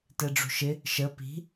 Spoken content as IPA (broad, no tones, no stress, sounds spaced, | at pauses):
t ɛ ɖ͡ʐ ṳ ʃ ɪ | ʃ ə p i̤